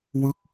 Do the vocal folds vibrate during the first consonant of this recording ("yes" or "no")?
yes